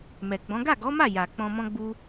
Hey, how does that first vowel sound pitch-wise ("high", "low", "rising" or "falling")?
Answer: low